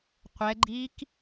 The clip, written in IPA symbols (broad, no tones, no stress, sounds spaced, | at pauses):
qʷ ɛ ɡ͡ǃ iː k